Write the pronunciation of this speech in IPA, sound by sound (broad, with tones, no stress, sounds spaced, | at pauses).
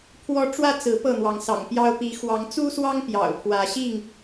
pʰ w ɔ˦ ʈ͡ʂ w ä˦ t͡s ɹ̩˨˦ p ɤ˥˨ n̪ w ɑ˨˦ ŋ s ɑ̰˨˩ ŋ p j ɑ˦ ʊ̯ p i˨˦ x w ɑ˨˦ ŋ t͡s u˦ s w ɑ˦ ŋ p j ɑ̰˨˩ ʊ̯ pʰ w ä˨˦ ɕ i˥˨ ŋ